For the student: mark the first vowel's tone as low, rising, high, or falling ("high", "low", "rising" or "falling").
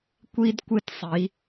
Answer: high